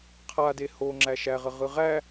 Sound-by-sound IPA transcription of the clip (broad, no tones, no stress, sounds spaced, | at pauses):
qʰ a d e h o ŋ͡ǁ æ ʃ æ ʁ ə ʁ ɯ ʁ æ